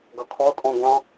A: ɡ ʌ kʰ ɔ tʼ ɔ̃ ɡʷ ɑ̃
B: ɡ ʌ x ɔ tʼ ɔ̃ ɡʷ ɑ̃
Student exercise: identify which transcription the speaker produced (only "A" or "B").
A